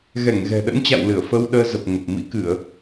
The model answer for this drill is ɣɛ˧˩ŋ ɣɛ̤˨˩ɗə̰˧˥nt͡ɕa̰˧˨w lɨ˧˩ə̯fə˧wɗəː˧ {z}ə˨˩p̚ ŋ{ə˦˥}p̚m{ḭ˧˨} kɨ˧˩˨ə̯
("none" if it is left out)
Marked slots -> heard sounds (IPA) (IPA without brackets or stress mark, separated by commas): z, ə˨˩, ḭ˧˥